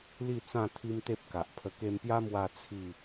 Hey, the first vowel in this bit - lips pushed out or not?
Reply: no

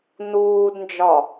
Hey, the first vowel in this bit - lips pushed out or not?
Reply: yes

